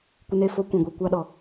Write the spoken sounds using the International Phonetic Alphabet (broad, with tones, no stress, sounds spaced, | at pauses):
kʷ ɨ˧ n e˦˨ f o˦ kʷ ũ˨ ɡʷ i˧ kʷ a˦ ɗ ɔ˨